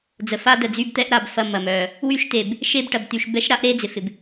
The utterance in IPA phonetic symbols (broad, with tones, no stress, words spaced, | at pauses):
d͡zə˨fa˦ də˨d͡zy˦˨bt̪ɛ˦ʔɾa˨b fɐ˦˨mɐ˨mœ˨ | wy˦ʃte˨b | ʃe˦˨bʈɐ˨bt̪y˨ʃ bɛ˦ʃɾa˦ʔɾe˦ d͡zɪ˨fɪ˨b